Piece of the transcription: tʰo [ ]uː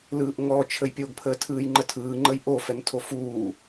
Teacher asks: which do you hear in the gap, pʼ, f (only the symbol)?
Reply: f